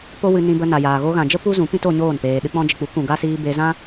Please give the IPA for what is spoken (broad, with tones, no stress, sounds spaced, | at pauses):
p o˦ w ɨ˧ n ĩ˧ b ə˧ n a˨ j aː˨ ɣ o˧ ɣ ã˨ d͡ʒ ə˦ p u˦ z ũ˨˦ p ĩ˦ t o˧ ɲ oː˦˨ n p eː˨ ɗ ɨ˧ k͡p ɔ̃˧ d͡ʒ ə˨ k͡p u˨˦ k ũ˨ ɡ a˦ s iː˧ b e˧ z ã˦